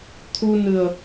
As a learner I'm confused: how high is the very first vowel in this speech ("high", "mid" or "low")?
high